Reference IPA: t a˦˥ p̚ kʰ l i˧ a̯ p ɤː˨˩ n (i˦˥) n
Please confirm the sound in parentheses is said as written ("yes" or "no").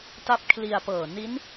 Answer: yes